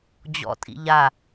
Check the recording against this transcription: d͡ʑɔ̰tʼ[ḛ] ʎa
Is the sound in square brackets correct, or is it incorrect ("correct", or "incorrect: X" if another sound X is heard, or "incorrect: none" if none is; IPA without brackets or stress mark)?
incorrect: ḭ